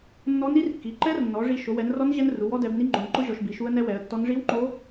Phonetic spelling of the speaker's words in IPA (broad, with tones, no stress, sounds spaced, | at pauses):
nː ɔ˦˥ n i˦˥ r kː i˨˦ ǃ ɛ˦˥ r nː ɔ˨˦ ʐ i˦˥ ʃ o˨˦ w ɛ˨˦ n r ɔ˦˥ n ʑ ɛ˦˥ n r u˨˦ w ɔ˦˥ d ɛ˨˦ b n i˦˥ ŋ͡ǃ o˨˦ n ǃ ʊ˦˥ ʑ ɔ˨˦ ʃ b i˨˦ ʃ u˦˥ ə̯ n ɛ˦˥ w ɛ˨˦ ə̯ tː ɔ˦˥ n ʐ i˦˥ w ŋ͡ǃ o˦˥